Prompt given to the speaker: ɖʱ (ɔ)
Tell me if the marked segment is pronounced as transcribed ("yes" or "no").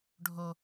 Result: no